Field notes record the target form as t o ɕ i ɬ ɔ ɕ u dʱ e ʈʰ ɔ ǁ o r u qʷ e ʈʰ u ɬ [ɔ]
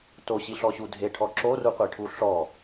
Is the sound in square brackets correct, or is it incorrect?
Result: correct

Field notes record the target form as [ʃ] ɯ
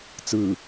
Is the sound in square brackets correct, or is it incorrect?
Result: incorrect: t͡s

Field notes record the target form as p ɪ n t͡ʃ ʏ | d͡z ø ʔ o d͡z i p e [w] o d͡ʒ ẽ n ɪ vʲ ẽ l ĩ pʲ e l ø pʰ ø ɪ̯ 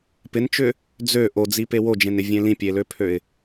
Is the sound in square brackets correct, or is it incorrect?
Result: correct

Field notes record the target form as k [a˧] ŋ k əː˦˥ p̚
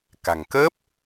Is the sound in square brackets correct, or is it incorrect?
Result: incorrect: a̤˨˩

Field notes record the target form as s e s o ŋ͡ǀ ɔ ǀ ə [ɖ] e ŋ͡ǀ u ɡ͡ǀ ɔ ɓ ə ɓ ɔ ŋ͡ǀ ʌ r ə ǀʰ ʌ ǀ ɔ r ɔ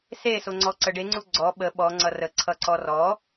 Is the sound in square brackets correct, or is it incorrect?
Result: correct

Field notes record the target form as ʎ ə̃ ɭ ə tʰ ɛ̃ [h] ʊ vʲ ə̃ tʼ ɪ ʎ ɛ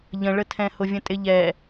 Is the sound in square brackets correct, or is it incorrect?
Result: correct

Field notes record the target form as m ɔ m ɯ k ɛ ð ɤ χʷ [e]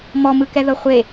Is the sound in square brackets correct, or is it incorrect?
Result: correct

